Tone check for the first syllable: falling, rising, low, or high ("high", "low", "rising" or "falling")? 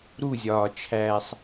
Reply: falling